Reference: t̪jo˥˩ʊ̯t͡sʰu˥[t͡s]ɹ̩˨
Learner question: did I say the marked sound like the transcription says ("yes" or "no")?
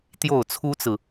yes